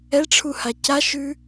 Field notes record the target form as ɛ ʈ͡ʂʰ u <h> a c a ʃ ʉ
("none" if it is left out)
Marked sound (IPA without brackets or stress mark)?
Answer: h